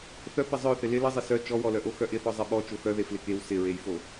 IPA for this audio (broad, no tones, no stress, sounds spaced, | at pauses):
θ œ p ɪ zˤ œ θ ɪ l ɪ l ə zˤ ɪ s œ t͡ʃ ɔ w ɔ l œ ʔ o x œ ʔ ɪ θ ɔ zˤ ɪ ɓ ɔ t͡ʃ o x œ ð e f l ɪ k e w s ɪ ɹ e j f o